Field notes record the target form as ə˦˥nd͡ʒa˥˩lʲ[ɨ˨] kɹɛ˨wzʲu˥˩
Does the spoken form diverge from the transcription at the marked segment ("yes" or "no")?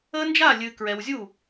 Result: no